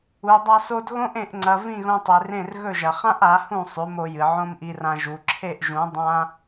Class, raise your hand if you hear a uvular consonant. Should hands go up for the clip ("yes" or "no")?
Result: yes